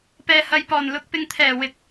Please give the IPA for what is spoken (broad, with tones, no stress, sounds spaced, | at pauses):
p ɛː˨ h ɐ˨ j p ɔː˨˩ n l ʊ˨ k̚ p ɪ˨ ŋ t̪ʰ ɛː˨˩ w ɪ˨˥ k̚